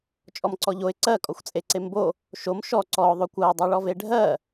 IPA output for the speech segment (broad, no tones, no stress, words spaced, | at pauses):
t͡ʃʼɔmǀɔʎoɪ̯ ǀɜ kʼɔxʷt͡sʼeǀembo | ʃom ʃɔ ǀɔʊ̯ ðˤokʷɜɪ̯ dˤɜɭɔveɖʱɜ